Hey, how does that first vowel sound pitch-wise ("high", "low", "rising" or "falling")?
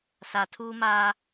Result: low